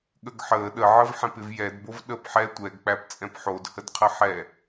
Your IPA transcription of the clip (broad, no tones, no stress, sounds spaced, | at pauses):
ɠ ə ɡ ħ əː ɗ ə ʕ ə v ħ ɛ̃ p ɪ v j ɛ d b o v ɗ əː p ħ ɛ tʷ ɛ ɡ k͡p æ p t͡sʼ ɛ̃ p ħ o d h ə d qʰ ə ħ ɛ